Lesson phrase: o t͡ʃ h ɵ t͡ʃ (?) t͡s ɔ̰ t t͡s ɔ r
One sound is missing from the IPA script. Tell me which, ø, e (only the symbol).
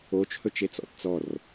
e